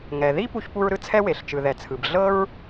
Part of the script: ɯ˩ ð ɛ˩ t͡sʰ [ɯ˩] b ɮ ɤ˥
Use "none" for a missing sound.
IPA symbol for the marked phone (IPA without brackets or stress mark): ɯ˩